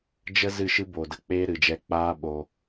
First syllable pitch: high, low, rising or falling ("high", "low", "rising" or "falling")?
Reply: high